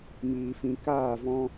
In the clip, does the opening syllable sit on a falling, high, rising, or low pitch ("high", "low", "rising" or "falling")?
low